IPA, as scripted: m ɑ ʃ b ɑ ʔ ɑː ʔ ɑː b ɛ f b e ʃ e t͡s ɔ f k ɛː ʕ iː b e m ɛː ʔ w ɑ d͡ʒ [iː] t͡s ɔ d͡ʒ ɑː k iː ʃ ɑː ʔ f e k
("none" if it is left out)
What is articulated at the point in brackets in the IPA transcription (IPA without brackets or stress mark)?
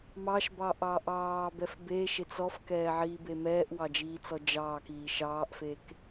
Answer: iː